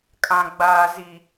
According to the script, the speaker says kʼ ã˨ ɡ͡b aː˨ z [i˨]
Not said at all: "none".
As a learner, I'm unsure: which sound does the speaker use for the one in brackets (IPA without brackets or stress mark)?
i˨